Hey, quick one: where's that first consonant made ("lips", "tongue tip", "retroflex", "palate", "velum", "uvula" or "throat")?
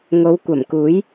velum